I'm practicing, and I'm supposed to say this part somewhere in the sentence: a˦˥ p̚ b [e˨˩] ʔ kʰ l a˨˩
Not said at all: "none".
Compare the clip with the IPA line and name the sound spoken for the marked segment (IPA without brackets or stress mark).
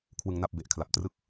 e˨˩